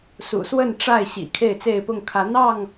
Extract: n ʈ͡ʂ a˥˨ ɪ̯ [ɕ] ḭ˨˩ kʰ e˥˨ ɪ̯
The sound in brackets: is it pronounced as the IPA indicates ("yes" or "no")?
yes